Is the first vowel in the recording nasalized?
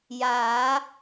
no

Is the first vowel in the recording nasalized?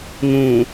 yes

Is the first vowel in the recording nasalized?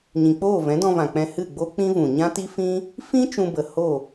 yes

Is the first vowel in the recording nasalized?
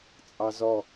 no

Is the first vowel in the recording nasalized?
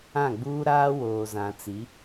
yes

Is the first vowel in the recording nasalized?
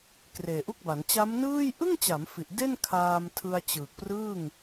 no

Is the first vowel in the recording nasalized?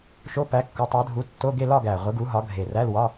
no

